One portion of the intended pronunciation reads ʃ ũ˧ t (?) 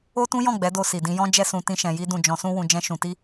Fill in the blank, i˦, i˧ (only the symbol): i˦